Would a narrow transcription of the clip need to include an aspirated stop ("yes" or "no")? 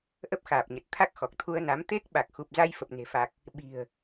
yes